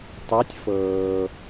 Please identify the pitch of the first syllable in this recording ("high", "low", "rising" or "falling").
rising